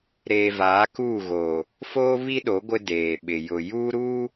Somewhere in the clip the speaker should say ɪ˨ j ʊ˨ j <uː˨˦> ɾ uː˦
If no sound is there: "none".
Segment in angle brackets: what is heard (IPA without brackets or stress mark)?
uː˦